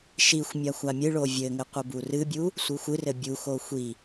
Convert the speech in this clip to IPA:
ʃ i xʷ mʲ a xʷ a mʲ ɨ ɭ o vʲ ɘ ŋ ɘ qʷ ɘ b u r ɨ bʲ u | sʷ ɨ xʷ ɨ r ɘ bʲ u x o xʷ i

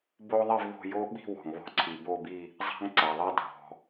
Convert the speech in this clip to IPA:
b o˥ ðˤ i˥˧ v ð o̤˥˧ j o˥ ɓ i̤˥˧ w ɔ̤˩ ŋ β ɔ̤˥ ǀʰ i˩ b o˥˧ b i˥˧ | zˤ a̤˥ ŋ ǀ a˩ ðˤ ɛ˥ dʱ ɔ̤˩

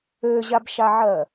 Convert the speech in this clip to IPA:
ø ʑ a b ʃ a ʕ ɜ

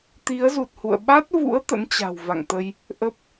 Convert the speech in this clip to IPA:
t̪ i˨˦ ə̯ z u˨˩ t̚ h ṵ˧˨ ə̯ ɓ a˦˥ t̚ v ṵ˧˥ ə̯ t̪ ə̰˧˥ n t͡ɕ a̤˨˩ w v a̰˧˨ ŋ t̪ ə˧ j | ʔ ə˦˥ p̚

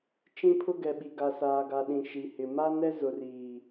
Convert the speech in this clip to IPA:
t͡ʃ ĩ˦ pʰ ʊ˦ ɡ ɛ˨ ɓ i˨ ɡ a˨ s aː˨ ɡ a˨ ɗ ĩ˨ ʃ i˨ h ɪ˨ m a˦ n ɛ˦ z ʊ˨ r iː˨

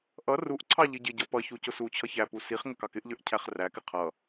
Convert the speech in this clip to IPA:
ʔ ʌ r u ʔ ǀʰ ɑ ʎ i ɟ ɪ ɟ ʌ p ʌ ç u c ʊ s u t͡ɕʰ ʌ ç æ p u s i χ ŋ ə k ɑ k ɪ ʔ ʎ ə˞ ʔ cʰ æ χ r æ k ɪ qʰ ʌ

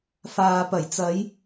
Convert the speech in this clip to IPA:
f aː˨ p ɐ˨˩ j t͡s ɐ˨˧ j

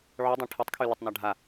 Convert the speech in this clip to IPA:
ʕ ʉ dˤ ɛ̃ ʈʰ ɛ tˤ kʰ y l ə tˤ n a ɖʱ a

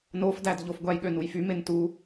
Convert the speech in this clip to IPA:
n o f d æ d ʎ o f ɡʷ æ j ɠ ø n u j f y m e n t u

